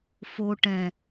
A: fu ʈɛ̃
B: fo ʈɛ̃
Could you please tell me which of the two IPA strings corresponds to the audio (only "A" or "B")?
B